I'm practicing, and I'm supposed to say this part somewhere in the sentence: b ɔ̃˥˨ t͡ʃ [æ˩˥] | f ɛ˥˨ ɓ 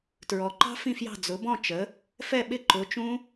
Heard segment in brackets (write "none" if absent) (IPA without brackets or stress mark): ə˩˥